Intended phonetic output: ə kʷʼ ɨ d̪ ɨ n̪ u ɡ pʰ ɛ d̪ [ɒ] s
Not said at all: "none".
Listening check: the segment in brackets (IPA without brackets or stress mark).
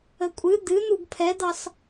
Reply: ɑ